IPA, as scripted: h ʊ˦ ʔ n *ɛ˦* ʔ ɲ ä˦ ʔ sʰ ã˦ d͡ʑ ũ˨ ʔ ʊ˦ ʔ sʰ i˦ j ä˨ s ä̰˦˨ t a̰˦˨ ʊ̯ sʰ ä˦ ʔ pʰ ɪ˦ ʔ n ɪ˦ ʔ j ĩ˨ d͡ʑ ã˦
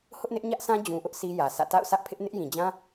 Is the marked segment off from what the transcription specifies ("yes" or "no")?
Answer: yes